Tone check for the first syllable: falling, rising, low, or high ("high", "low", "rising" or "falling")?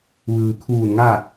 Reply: low